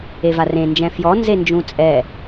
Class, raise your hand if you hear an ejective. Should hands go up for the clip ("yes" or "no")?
yes